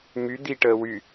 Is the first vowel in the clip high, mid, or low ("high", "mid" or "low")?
high